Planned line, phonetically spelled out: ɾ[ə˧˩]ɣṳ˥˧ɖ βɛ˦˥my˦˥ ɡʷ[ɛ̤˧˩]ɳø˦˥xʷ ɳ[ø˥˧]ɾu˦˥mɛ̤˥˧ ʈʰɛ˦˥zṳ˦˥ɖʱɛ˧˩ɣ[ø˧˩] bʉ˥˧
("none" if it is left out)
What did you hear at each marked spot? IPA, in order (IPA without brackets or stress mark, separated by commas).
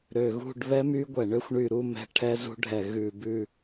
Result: ø˧˩, ɛ˧˩, y˥˧, ʉ˧˩